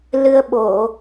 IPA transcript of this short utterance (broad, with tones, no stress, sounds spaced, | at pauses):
l ɨ˧ ə̯ ɓ o˧˩˨